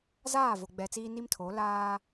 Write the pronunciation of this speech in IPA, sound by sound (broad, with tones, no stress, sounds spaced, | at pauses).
z aː˦˨ v o˨ ɡ͡b ɛ˨ t͡s iː˦ n i˦ m tʰ o˨˦ l aː˦